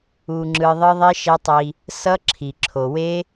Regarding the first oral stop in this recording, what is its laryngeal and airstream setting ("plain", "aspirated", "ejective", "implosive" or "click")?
click